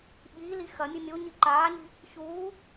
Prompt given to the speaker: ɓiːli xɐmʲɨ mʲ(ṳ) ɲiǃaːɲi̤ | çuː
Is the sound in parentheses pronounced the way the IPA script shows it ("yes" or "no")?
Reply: no